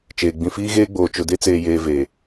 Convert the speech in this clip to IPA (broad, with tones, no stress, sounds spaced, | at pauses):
t͡ʃ eː˨ ɡ͡b ĩ˨ f iː˦ ɣ eː˦ ɡ͡b oː˨ t͡ʃ ʊ˨ d e˦ t͡s eː˨ j eː˨ v e˨